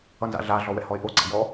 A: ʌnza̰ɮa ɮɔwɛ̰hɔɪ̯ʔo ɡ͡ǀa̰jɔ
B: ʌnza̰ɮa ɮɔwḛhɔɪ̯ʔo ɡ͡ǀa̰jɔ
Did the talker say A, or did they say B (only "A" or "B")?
A